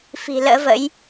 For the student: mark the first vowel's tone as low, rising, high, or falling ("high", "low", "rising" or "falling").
low